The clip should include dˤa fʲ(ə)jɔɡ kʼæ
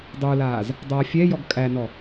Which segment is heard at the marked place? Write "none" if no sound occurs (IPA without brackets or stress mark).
ɛ